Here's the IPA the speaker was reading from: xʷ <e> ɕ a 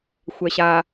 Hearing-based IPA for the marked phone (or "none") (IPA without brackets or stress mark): ɛ